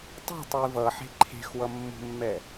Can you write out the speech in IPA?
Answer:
tˤ ṳ tˤ u i̯ v ʌ ħ e̤ ǃʰ e̤ x w ʌ mː ṳ mː ɛ

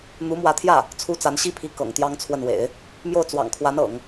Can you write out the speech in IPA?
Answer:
n̪ u˧˥ m w ä˧˥ t̪ʰ j ä˥˩ | t͡sʰ u˥ t͡s a˧˥ n ɕ i˥ pʰ i˧˥ k ɤ̰˨˩ ŋ t̪ j ɑ˥ ŋ t͡sʰ w ə˥˩ n w ḛ˨˩˦ ɪ̯ | m j o˥˩ ʊ̯ t͡s w ɑ̰˨˩ ŋ kʰ w a˧˥ n ɤ̰˨˩˦ ŋ

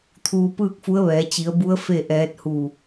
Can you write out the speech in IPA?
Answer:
t̪ʰ uː˧ p ɯː˥˨ k̚ f u˧˥ ə̯ ʋ ɛː˩˧ t͡ɕ i˩˧ ə̯ b u˧˥ ə̯ f e˥˨ ʔ ɛː˧˥ t̚ h u˧˩

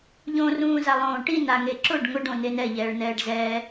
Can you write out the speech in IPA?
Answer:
ʎ õ r ũː z a lˠ õː ʈ i n a ŋ e ǁ ʊ ɖ ŋ ʊ ɖ õ n e n ɛ ʎ ɛː ɭ n ɛː ɖ z ɛ

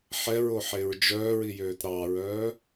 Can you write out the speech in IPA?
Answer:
ħ ɛ ɹ o ħ e ɹ d͡ʒ œː ɹ i j øː t ɾ ɑ ɹ œː

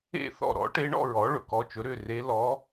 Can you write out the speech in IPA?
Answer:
ḛ˥˩ θ ɔ̰˥˩ ɾ ɔ̰˩˥ ʈ e˧˥ ɳ ɔ̰˥˧ ɹ ɔ˩˥ ɭ ɵ˨ k ɔ˧˥ t͡ʃ ɵ˩˥ ɾ ʏ˥˩ r e˧˥ l ɔ˧˥

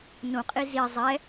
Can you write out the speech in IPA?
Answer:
n ũ qʼ i z i zˤ ɛ

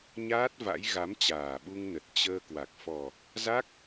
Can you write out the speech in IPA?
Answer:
ɲ aː˦˥ t̚ v a̰˧˥ j ɣ a˨˦ m t͡ɕ aː˨˩ ɓ u˧ ŋ n ə˨˩ t̚ t͡ɕ əː˧ k w a˨˩ k̚ f ɔ˨˩ | z a˦˥ k̚

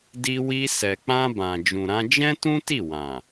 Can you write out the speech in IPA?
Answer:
d i˧ w i˧ s ɛ˨ k͡p ã˧ b ã˨ d͡ʒ ũ˨ ɾ ã˧ d͡ʒ ɛ̃˦ t ũ˦ t i˦˨ w ã˨

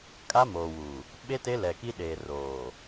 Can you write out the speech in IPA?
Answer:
kʼ a˦ m oː˨ w uː˨ | ɓ e˦ t e˦ l ɛ˨ k i˦ ɗ eː˨ r oː˨

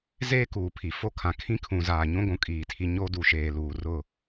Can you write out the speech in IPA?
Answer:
z eː˦ k uː˨ pʰ i˨ f o˦ kʰ ã˨ kʰ ĩ˦ kʰ ũ˨ z aː˨ ɲ ũ˦ ɡʷ ũ˨ kʼ iː˨ tʰ i˦ ɲ o˦ d u˨ ʃ eː˨ l uː˨ r ʊ˦˨

